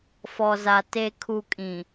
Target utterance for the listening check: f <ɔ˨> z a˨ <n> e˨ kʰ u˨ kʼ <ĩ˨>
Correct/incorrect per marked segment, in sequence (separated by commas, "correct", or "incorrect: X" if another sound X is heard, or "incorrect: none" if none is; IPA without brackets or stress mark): correct, incorrect: t, correct